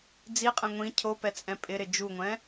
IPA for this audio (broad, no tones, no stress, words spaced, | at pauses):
d͡ziqʼɛ̃ ŋʷĩ cʰopɛt͡sʼɛ̃ pʼɪɾɪ d͡ʒuŋʷɛ̃